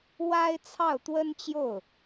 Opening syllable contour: high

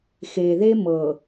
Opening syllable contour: low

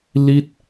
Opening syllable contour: falling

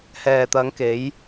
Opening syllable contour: low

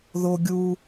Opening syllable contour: high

